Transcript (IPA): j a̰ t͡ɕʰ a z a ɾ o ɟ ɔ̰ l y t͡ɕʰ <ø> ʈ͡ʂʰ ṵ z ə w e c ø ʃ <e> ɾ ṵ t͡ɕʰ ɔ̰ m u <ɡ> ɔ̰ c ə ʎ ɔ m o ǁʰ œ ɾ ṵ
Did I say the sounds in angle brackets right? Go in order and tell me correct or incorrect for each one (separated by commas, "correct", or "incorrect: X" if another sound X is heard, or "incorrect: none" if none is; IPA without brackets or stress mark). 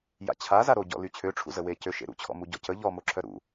correct, incorrect: ḛ, incorrect: ɟ